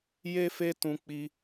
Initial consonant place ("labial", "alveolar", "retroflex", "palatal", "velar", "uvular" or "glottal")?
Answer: palatal